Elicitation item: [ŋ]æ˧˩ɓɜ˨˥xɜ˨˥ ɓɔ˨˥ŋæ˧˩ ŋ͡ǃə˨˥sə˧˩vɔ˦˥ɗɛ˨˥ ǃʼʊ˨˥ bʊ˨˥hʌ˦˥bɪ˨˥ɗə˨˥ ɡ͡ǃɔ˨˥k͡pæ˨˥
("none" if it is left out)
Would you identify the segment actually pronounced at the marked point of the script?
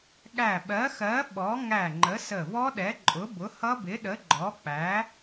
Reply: ɠ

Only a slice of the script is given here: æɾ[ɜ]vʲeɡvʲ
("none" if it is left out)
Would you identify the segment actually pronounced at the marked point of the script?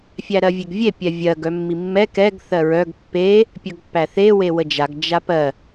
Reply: ɜ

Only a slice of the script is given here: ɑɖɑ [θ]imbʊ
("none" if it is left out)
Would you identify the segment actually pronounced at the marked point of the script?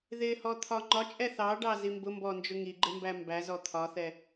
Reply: z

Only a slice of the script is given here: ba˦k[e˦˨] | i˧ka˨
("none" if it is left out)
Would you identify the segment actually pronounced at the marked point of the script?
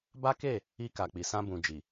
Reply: e˦˨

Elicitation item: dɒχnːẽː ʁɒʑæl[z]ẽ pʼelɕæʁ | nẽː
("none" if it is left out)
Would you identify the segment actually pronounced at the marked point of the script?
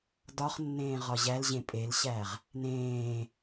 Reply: ʑ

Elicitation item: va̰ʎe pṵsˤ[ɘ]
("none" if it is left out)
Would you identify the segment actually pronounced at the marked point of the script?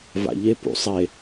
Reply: e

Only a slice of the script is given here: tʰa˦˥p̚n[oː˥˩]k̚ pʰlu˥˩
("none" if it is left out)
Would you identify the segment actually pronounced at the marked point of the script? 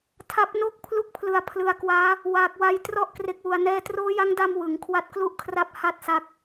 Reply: o˥˩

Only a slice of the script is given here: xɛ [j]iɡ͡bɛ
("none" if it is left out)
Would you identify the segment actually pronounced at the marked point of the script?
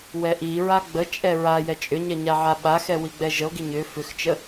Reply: w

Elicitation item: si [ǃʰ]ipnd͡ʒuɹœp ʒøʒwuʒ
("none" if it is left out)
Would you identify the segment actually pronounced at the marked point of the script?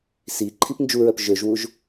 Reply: ǃʰ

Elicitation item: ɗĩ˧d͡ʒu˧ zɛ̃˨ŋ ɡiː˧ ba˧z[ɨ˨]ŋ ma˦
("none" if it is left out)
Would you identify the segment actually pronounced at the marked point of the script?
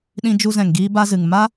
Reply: ɨ˨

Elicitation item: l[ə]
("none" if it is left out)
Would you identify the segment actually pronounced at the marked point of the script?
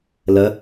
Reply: ə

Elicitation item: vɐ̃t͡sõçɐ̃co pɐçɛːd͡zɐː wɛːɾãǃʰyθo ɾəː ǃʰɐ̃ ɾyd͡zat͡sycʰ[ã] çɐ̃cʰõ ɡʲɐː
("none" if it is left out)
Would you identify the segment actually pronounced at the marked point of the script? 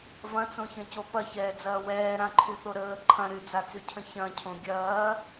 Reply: ə̃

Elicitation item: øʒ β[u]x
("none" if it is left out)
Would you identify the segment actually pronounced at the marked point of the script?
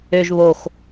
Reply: o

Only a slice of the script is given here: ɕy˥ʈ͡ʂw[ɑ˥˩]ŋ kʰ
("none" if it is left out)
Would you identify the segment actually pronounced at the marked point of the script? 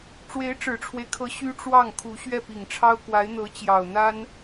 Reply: ɑ˥˩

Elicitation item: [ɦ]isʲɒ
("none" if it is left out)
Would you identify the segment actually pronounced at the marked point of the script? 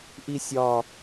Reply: ʔ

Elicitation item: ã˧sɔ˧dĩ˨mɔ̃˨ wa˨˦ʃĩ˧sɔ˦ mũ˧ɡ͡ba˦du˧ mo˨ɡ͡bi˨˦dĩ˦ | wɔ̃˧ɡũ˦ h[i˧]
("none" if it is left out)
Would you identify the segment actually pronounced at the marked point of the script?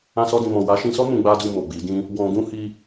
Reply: i˧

